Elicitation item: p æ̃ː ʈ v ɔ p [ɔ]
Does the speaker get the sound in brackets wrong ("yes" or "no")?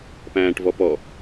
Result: no